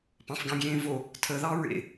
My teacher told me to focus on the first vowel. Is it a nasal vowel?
yes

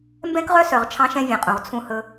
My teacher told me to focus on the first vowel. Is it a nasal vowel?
yes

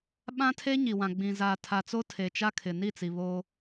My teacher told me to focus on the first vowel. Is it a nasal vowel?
yes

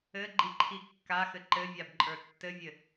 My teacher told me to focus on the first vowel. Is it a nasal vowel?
no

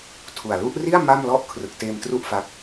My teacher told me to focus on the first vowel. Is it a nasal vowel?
no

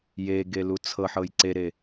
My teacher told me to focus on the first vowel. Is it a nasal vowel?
no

